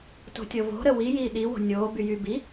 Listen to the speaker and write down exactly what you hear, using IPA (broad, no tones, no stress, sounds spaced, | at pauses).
t o̤ tʲ ɤ v o̤ ɾ ə w i j iː ɗ i w o̤ nʲ oː b y j y b i